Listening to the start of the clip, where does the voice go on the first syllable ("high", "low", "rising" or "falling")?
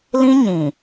high